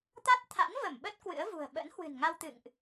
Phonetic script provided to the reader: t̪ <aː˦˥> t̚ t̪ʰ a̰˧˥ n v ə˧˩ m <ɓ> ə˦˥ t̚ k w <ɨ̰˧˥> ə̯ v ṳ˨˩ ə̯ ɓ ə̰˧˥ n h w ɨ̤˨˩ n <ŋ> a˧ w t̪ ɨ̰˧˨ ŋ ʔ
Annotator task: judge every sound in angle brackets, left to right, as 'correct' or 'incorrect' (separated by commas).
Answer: incorrect, correct, correct, correct